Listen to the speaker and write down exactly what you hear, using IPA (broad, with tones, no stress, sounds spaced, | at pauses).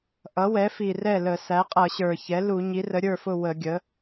ʔ ʌ˩˥ w ɛ˩˥ f i˨˩ r ɛ˥˩ l ə˧˩˧ s æ˩˥ qʼ ʌ˧˩˧ ɕ ə˞˨˩ ç ɛ˩˥ l u˧˩˧ ɲ i˩˥ r ə˩˥ ɾʲ ə˞˥˩ f ʊ˥˩ w ə˧˩˧ ɡʲ ə˩˥